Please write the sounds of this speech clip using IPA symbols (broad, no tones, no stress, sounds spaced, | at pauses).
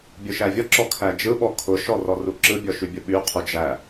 bʲ ʊ ʃ æ vʲ ɔ ǁ ɔ kʰ æ d͡ʒ ɯ ɓ ɔ kʰ ʊ ʃ ɔ r ɔ r u ǁ ɯ bʲ ɔ ʃ y bʲ ʊ ɓ y qʰ u d͡ʒ æ